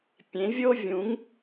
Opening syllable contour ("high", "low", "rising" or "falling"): rising